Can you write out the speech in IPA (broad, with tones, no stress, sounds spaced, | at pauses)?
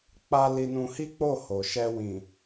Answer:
k͡p a˧ l i˧ n ũ˧ h i˦ k͡p o˦˨ h o˨ ʃ ɛ˧ w ĩ˨